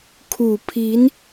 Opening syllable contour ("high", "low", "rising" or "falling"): low